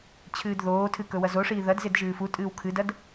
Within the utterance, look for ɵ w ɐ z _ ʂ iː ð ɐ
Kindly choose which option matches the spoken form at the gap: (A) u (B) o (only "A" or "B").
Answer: B